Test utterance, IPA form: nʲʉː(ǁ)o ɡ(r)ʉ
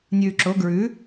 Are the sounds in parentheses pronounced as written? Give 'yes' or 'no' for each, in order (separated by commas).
yes, no